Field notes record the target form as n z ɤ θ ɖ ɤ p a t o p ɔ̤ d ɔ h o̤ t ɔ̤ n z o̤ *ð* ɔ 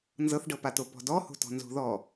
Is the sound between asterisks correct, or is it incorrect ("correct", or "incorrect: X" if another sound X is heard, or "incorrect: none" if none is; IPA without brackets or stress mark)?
correct